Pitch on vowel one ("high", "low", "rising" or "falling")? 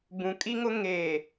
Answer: low